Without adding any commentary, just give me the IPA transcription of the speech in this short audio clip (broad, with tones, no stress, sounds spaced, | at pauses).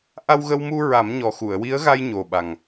ʔ a˧ w ɣ ə˧ w m u˧ ɹ a˨˩˦ m ɲ ɔ˨˩ x u˨˩˨ ə̯ w i˧˥ ə̯ ɣ a˧ j ɲ o˨˩ ɓ a˨˩ ŋ